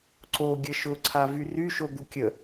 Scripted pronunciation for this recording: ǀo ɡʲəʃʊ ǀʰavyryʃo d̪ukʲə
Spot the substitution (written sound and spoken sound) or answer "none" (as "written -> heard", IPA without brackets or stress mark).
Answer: none